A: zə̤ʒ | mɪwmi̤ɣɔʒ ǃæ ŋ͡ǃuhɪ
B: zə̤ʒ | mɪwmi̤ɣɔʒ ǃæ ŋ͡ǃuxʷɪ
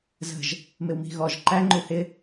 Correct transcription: A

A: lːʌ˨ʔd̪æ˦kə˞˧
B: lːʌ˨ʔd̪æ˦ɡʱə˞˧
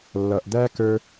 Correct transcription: A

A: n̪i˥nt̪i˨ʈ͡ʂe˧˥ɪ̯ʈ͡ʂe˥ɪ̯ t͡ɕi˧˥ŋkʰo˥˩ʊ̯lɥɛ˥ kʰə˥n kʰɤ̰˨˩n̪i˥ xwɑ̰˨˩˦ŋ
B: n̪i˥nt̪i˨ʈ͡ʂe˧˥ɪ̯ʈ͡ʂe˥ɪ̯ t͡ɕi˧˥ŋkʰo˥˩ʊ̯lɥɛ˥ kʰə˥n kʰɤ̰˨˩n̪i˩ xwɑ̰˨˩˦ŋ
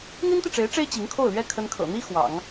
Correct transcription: A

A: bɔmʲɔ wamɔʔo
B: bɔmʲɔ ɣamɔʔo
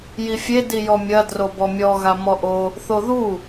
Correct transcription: B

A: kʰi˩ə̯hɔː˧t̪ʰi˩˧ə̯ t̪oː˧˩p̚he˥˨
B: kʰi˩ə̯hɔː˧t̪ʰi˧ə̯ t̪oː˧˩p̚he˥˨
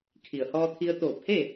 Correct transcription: B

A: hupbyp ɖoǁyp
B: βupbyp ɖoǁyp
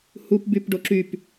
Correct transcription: A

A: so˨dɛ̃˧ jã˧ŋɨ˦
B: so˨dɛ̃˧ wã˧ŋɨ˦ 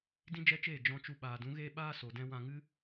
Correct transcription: B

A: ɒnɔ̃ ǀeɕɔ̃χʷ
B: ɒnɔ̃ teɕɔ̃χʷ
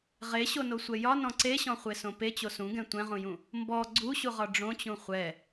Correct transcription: A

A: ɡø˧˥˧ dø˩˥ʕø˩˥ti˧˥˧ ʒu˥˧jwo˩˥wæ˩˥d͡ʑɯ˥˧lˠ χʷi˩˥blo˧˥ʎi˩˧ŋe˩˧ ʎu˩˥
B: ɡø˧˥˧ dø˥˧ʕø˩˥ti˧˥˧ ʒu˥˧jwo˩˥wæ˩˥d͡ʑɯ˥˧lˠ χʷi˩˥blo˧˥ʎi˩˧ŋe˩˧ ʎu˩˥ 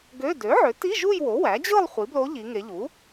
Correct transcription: A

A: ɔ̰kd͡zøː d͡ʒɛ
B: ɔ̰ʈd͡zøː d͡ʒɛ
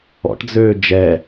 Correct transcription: B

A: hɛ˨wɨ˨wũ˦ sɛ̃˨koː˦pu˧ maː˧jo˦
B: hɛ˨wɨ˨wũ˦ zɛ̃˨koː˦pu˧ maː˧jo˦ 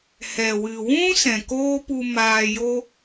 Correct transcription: A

